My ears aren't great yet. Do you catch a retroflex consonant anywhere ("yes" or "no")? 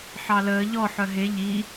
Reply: no